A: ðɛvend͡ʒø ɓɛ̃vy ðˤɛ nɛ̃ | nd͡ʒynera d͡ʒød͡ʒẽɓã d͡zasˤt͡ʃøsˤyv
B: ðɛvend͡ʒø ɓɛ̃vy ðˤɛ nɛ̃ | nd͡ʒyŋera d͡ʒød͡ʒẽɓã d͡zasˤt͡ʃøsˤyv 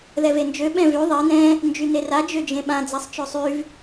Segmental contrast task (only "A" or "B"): A